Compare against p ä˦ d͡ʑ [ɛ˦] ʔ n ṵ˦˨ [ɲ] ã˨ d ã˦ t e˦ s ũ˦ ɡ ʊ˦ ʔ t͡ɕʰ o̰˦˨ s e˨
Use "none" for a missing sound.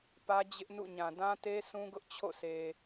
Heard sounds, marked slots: ɪ˦, ɲ

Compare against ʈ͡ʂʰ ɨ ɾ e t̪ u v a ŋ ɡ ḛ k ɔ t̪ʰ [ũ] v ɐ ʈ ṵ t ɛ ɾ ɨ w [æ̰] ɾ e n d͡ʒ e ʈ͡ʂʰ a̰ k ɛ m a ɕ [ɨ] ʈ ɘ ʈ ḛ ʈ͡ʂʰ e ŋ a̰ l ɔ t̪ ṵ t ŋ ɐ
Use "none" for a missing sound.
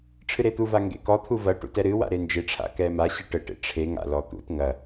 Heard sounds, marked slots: u, a̰, ɨ

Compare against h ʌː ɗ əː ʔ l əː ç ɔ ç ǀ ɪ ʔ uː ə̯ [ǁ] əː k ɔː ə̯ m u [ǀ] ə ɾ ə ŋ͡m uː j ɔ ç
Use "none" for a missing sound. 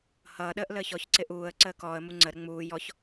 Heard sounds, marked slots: ǀ, ŋ͡ǀ

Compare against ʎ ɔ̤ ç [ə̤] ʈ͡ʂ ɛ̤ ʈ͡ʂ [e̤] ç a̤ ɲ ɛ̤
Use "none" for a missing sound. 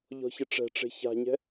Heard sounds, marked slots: ə, e̤

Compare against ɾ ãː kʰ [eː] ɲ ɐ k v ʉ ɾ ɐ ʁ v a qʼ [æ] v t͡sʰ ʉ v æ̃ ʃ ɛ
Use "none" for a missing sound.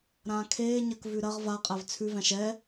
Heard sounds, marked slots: eː, æ

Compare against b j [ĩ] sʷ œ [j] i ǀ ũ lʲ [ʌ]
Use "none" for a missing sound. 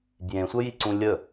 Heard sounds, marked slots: ẽ, j, ə

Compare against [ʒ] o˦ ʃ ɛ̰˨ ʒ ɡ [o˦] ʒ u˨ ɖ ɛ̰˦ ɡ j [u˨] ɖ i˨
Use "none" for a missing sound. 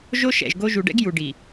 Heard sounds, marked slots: ʒ, o˦, u˨

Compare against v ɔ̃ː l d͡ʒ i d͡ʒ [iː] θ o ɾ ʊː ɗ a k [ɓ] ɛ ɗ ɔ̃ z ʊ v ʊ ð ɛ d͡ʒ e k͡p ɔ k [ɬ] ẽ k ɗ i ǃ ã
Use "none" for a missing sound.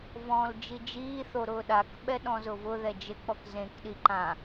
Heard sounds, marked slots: iː, ɓ, z

